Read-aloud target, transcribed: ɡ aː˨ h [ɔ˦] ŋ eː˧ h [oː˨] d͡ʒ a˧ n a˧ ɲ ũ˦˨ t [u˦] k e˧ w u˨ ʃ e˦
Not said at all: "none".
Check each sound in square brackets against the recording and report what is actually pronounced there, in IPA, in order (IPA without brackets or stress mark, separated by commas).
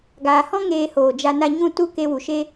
ɔ̃˦, oː˨, u˦